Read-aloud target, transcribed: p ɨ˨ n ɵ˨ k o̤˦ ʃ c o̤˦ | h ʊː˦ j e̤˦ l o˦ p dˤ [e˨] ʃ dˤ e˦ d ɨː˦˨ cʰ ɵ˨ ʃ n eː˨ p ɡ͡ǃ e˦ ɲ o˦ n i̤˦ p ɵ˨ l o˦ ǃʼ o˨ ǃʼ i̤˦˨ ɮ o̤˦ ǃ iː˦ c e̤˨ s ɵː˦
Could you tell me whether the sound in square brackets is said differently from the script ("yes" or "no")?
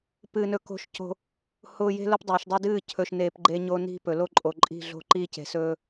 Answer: yes